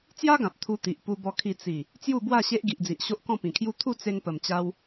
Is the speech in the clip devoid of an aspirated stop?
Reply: no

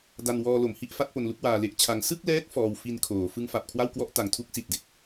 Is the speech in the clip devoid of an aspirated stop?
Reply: no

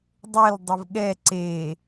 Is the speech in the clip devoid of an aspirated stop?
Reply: yes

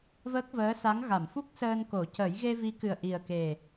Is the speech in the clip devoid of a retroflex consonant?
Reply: yes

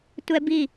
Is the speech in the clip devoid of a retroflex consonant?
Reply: yes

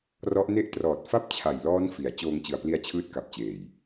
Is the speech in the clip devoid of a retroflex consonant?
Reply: yes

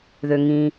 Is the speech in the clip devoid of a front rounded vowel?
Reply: no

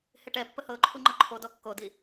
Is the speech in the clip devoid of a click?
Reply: no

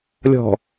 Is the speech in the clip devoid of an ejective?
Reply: yes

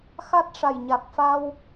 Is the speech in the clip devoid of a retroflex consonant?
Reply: no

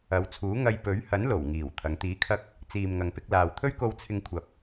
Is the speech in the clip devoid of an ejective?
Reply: yes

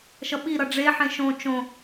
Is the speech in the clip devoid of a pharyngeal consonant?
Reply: no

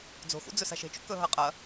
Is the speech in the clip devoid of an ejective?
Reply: no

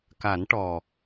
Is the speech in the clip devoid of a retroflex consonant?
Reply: no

